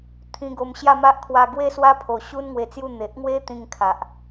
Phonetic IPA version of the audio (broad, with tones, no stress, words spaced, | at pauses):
t̪ʰĩ˧ɡo˧mɕja˥˧ma˦ʔ kʰwa˧ ɡwe˥˧swa˦pʰo˨˩ɕu˦n ŋwe˧t͡sju˥˧ n̪e˨ʔŋwe˦t̪ĩ˧ŋ kʰa˨ʔ